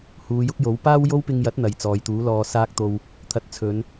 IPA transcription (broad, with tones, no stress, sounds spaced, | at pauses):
h uː˨˧ j ʊ˥ k̚ j o˨˥ w p aː˥ w j o˥ w p ɪ˧ ŋ j ɐ˨˥ t̚ n̪ ɐ˨ j t͡s ɔː˨ j t̪ uː˨˥ l ɔː˧ s aː˥ k̚ t̪ o˧ w | t̪ʰ ɐ˨ t̚ t͡sʰ ɵ˨˧ n